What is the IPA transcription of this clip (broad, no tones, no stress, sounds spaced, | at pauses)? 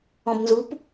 ɔ̃ b n z u p